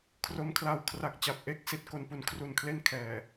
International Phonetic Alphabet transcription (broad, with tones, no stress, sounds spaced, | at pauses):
kʰ r o˧ m kʰ l a˧ w kʰ r a˨˩ k̚ t͡ɕ a˨˩ p̚ ʔ e˦˥ k̚ s i˨˩ t̚ k o˨˩ n p u˩˦ n kʰ r u˨˩ n kʰ l e˥˩ n kʰ ɛː˨˩